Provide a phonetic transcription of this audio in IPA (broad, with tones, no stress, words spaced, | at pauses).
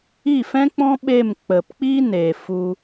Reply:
i˦˨fɛ̃˦k͡pɔ̃˦ ɓe˦˨m k͡pə˨pk͡pi˦ne˨ fu˧